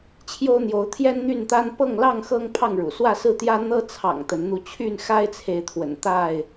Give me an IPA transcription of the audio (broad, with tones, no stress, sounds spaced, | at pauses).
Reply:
t͡ɕʰ j o˦ ʊ̯ n̪ j o˨˦ ʊ̯ t̪ʰ j ɛ˦ n n̪ y˥˨ n t̪ a˦ n p ɤ˥˨ ŋ l ɑ˥˨ ŋ x ɤ˦ ŋ pʰ ɑ˥˨ ŋ ɻ ṵ˨˩ s w ä˥˨ s ɹ̩˥˨ t̪ j ä˦ n̪ ɤ˦ t͡sʰ ɑ̰˨˩ ŋ t̪ ə˨˦ n n̪ u˧ t͡ɕʰ y˥˨ n x a˦ ɪ̯ t͡sʰ e˨ ɪ̯ t̪ʰ w ə̰˨˩ n t̪ a˥˨ ɪ̯